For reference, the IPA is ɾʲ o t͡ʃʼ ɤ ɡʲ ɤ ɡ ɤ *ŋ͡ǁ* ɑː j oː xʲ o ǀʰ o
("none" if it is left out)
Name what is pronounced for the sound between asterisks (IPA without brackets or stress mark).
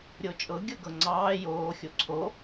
ŋ͡ǀ